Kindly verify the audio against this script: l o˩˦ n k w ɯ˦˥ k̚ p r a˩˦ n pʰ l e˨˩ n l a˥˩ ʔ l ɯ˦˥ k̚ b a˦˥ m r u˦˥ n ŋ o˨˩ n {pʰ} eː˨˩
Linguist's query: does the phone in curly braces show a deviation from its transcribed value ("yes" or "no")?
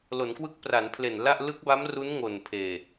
no